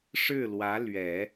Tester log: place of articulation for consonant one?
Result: retroflex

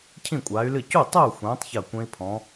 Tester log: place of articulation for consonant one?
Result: palatal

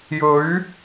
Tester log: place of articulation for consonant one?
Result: palatal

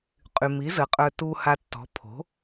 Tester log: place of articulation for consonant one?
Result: uvular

